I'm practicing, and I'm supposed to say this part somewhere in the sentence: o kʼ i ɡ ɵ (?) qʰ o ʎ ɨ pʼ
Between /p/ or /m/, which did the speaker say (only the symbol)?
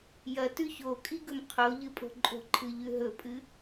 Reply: m